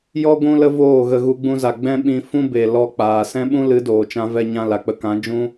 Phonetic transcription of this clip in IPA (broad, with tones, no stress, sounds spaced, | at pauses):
j ɔ˦ ɡʷ ũ˧ l ə˧ v oː˦˨ ɣ ə˧ ɣ u˧ ɡ͡b ũ˧ z a˨ ɡ͡b ɛ̃˦ ɓ ĩ˧ f ũ˦ b e˨ l ɔ˧ k͡p aː˨ s ɛ̃˦ ɓ ũ˦ l ɨ˨˦ d oː˨ t͡ʃ ã˦ v ɛ˦ ɲ ã˧ l a˨ k͡p ə˧ k ã˨˦ d͡ʒ ũ˦